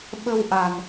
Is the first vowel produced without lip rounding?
yes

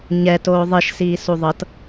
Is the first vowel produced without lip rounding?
yes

